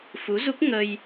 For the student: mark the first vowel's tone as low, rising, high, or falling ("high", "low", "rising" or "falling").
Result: rising